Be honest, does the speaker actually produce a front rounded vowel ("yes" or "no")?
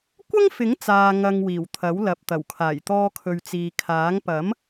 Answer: no